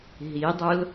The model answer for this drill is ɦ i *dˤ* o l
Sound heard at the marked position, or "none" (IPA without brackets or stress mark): dˤ